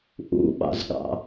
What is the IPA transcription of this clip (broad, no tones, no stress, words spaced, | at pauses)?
ʔṵɓɑ̰zɠɑ̰